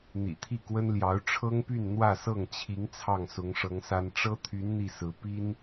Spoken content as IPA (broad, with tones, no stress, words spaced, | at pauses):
n̪ḭ˨˩t̪ʰi˥˩kwə˥nljɑ˧˥ʊ̯ ʈ͡ʂʰɤ˥ŋpy˥˧n n̪wä˥˧sɤ˥˩ŋt͡ɕʰi˧˥ŋ t͡sʰɑ˥˩ŋsʊ˧˥ŋʂɤ˧˥ŋsa˥n ʈ͡ʂɤ˥t̪ʰy˧˥n n̪i˥˩sɹ̩˧˥ pi˥n